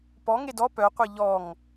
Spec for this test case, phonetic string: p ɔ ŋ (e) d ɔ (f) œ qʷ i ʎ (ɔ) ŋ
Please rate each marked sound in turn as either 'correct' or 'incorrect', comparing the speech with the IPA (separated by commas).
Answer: correct, incorrect, correct